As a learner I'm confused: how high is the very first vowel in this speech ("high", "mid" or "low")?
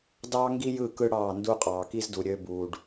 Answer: low